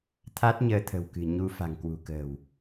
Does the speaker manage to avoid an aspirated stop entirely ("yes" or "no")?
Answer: no